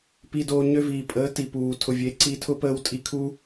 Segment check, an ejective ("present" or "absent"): present